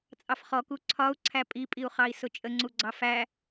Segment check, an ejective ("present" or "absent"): present